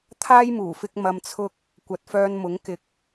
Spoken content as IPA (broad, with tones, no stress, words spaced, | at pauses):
t̪ʰaː˥jmuː˨˩fɪ˧k̚ mɐ˧mt͡sʰʊ˥k̚ | kʷɐ˨t̚fœː˧nmʊ˨˥ŋ kɪ˨k̚